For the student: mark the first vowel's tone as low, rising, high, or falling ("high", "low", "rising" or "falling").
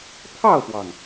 falling